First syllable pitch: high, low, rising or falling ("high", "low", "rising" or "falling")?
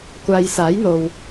low